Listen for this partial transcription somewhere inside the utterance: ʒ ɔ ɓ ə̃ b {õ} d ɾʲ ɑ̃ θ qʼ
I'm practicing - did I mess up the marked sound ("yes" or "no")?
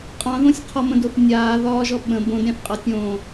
no